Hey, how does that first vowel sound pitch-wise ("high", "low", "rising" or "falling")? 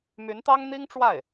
rising